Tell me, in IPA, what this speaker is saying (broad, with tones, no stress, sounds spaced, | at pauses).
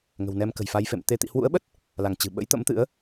ŋ ə̤˨˩ w n ɛ˧ m k ə̤˨˩ j f a˧ j f ḛ˧˨ m t̪ e˧ t̪ ḭ˧˨ h w ṵ˧˥ ə̯ ɓ ə˦˥ t̚ | l a˧˩ ŋ t͡ɕ ɨ̤˨˩ ɓ ə̰˧˥ j t̪ ə̰˧˥ m t̪ ɨ̰˧˥ ə̯